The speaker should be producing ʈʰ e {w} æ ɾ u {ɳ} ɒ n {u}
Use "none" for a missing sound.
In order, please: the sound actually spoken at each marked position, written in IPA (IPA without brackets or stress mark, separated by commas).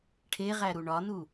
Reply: ʁ, ɳ, u